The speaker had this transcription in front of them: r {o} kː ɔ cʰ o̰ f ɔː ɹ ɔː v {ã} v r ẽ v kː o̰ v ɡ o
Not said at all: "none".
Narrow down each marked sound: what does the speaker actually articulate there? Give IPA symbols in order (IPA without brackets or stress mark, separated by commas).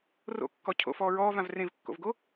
o̰, ã